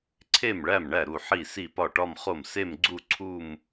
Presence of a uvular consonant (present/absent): present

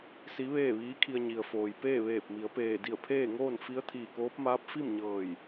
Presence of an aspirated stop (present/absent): present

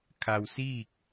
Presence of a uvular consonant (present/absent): absent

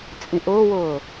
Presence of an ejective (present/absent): present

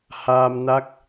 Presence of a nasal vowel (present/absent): absent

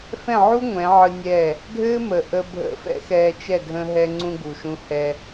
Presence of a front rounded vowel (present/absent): absent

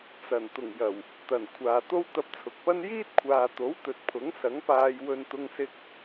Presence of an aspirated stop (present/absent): present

